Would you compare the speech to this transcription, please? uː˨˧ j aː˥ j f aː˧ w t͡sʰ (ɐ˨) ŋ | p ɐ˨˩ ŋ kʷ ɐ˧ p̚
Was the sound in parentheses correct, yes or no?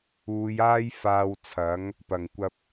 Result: no